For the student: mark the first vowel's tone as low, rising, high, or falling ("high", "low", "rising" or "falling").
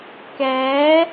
rising